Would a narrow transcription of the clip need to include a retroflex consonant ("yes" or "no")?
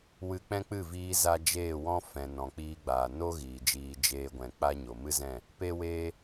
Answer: no